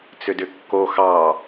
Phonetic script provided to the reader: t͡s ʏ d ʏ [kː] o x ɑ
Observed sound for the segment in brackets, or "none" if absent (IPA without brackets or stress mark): kː